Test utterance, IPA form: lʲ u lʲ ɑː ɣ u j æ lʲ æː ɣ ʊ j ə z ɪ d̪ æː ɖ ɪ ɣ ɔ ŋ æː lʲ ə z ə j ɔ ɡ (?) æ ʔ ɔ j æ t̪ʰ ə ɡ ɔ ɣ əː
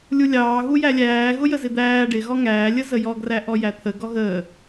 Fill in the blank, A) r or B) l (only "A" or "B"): A